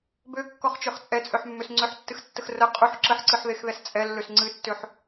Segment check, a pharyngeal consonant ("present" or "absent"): present